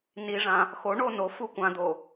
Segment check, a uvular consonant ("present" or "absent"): absent